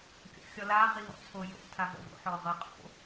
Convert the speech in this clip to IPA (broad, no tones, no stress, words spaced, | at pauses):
kʲɔ̰xʲɔla ʁiɦɔ̰t͡sʰojo̰ tʰavɔ̰vo̰ ħɔʁɤ qʼo̰